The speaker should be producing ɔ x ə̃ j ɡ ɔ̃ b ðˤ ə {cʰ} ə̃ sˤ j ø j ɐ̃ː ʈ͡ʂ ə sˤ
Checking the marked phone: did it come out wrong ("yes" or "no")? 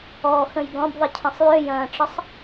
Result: no